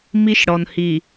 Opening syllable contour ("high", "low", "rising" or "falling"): high